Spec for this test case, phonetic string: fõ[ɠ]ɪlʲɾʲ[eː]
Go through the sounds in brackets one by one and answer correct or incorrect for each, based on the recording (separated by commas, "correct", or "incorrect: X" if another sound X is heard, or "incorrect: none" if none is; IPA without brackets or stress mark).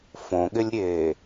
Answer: correct, correct